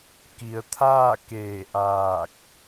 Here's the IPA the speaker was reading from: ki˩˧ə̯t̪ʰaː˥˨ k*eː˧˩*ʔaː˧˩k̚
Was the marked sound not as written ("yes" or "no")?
no